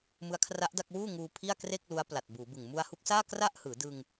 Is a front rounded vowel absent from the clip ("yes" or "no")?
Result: yes